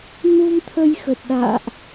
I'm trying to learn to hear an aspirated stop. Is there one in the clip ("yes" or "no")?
yes